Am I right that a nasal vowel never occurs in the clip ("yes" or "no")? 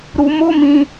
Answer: no